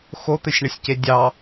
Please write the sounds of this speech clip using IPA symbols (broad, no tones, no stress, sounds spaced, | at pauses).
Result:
x o t̪ ɘ sʲ ɳ ɘ sʲ c e dʲ ɑ